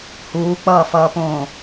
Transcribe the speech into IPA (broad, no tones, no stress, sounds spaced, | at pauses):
h uː k͡p ʌː f ʌː p õː